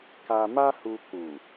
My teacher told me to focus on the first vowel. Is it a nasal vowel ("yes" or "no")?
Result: no